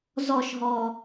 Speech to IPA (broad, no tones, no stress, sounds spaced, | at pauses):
z ɔ ʃ ɦ ɔ